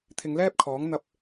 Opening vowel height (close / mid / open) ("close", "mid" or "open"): close